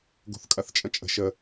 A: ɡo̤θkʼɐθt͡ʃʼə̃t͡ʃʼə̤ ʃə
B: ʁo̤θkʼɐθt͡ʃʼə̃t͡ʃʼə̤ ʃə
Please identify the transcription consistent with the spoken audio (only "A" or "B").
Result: A